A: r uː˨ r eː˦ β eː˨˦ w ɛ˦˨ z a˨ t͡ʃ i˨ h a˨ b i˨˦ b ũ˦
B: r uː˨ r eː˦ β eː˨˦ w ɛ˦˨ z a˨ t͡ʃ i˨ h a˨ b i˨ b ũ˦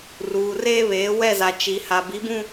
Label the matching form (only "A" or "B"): A